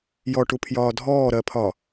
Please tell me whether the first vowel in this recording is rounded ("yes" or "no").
yes